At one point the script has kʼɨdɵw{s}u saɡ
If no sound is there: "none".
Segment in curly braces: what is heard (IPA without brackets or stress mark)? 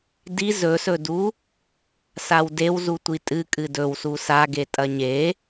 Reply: s